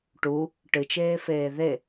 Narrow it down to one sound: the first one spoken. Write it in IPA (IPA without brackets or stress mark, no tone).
ʈ